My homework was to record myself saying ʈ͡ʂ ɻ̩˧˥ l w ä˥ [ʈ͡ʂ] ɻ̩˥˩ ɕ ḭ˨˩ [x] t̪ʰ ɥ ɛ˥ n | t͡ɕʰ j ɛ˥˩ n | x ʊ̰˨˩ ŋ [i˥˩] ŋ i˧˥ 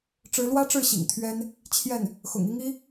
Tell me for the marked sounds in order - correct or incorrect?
correct, incorrect: ŋ, incorrect: i˥

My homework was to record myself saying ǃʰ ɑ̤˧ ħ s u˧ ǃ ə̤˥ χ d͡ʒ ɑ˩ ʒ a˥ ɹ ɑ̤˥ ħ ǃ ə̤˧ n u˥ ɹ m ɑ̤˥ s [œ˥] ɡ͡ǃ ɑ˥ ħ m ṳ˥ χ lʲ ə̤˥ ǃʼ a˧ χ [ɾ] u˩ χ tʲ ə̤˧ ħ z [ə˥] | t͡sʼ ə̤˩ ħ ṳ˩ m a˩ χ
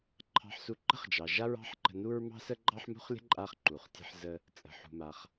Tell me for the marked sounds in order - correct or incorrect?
incorrect: ə˥, incorrect: ǃ, incorrect: ə˧

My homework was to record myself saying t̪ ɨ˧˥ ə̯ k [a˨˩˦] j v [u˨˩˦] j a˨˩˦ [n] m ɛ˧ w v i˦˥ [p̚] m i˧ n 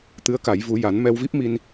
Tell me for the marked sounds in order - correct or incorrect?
correct, correct, correct, correct

